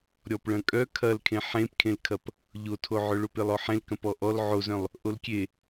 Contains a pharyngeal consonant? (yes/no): yes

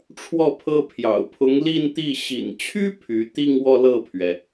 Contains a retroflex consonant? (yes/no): yes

